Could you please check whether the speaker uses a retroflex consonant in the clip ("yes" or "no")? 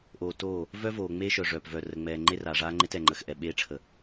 yes